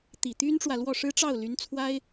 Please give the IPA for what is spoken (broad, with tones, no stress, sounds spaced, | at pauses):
t̪ i˨˩ t̪ y˥ n ʈ͡ʂ w ä˨ l w ɔ˥˩ ʂ ɻ̩˥ ʈ͡ʂ ɑ˥˩ ʊ̯ l y˧˥ n t͡sʰ w a˥ ɪ̯